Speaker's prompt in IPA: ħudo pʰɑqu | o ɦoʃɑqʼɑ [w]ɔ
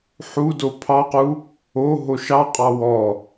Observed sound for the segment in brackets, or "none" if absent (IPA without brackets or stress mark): w